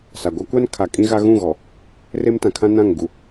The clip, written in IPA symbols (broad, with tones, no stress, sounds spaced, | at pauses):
s a˨ ɡʷ a˦ kʷ a˦ n kʰ a˨ kʼ ĩ˦ ɣ a˦ ɣ ũ˦˨ ɣ ɔ˨ | r e˦ m t ã˨ kʰ ã˦ n ã˦˨ ŋ ɡ u˨